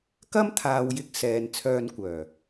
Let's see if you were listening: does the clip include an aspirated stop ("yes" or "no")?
yes